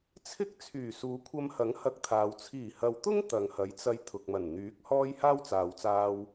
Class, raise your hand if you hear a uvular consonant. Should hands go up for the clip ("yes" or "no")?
no